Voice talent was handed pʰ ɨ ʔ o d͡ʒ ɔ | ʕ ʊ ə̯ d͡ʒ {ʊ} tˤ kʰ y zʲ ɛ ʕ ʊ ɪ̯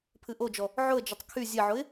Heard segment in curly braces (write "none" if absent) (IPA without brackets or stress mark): ʊ